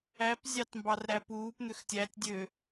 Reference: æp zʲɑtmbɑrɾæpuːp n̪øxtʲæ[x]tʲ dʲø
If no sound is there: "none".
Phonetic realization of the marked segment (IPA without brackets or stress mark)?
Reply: none